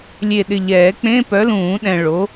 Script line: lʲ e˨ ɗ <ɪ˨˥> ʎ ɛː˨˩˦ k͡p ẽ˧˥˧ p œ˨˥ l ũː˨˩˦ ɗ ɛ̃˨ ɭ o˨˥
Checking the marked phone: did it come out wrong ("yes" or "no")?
yes